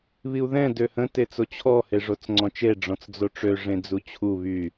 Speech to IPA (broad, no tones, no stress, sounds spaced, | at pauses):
β i u̯ ð ɛ̃ d ø h ə̃ t e t͡s o t͡ɕʰ ɔ h e ʐ o t͡s ŋ͡ǀ ɔ̃ t͡ʃ e ɖ͡ʐ ɔ̃ t͡s d͡z o ʈ͡ʂ ø ʐ ẽ d͡z u t͡ɕʰ u β y